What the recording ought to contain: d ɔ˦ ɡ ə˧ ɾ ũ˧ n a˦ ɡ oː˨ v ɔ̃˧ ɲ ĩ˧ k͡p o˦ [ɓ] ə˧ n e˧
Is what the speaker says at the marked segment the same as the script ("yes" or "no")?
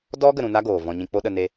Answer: no